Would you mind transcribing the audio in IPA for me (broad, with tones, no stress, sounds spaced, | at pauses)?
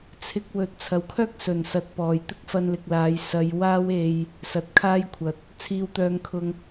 t͡sʰ ɪ˧ k̚ w ɵ˨ t̚ t͡sʰ ɐ˨ w kʰ œː˥ k̚ s ɵ˨˩ n s ɐ˨ t̚ p ɔː˨˩ j t̪ ɪ˥ k̚ f ɐ˧ n l ɪ˨ k̚ l aː˨˧ j s ɐ˨˧ j w aː˧ w e˨ j | s ɐ˨ t̚ kʰ aː˥ j kʷʰ ɐ˨˥ t̚ | t͡sʰ iː˨ w t̪ œː˨ ŋ kʰ ʊ˨ ŋ